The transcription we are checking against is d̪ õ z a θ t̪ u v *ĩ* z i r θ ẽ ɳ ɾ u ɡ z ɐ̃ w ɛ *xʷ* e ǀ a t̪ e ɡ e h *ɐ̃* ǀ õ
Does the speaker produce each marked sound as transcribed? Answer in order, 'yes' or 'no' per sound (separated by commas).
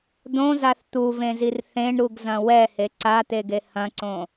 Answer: no, no, yes